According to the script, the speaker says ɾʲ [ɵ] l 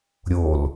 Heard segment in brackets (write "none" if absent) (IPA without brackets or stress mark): o